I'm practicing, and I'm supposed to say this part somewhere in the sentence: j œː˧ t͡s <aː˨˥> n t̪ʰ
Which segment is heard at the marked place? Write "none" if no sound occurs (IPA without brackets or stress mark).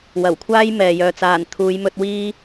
aː˨˩